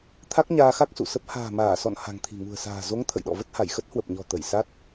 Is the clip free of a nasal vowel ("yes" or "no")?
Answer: yes